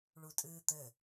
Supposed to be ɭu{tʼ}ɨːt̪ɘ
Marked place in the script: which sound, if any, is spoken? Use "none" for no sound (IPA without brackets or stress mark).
tʼ